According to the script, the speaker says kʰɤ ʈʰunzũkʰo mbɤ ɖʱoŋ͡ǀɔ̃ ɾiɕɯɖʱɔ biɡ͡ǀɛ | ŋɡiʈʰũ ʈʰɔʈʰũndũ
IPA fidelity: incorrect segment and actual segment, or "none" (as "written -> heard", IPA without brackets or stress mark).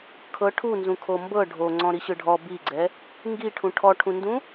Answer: none